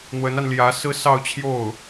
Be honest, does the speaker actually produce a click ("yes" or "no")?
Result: no